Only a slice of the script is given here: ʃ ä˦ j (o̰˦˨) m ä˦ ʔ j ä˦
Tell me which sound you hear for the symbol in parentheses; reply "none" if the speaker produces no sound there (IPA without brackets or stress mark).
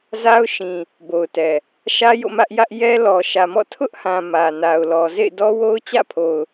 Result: o̰˦˨